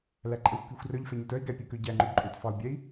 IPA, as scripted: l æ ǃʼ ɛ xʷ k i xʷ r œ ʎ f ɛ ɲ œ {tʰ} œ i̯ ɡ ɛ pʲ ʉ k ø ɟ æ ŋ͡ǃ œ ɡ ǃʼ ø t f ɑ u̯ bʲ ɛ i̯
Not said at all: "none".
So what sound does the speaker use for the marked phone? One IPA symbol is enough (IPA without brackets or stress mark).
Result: t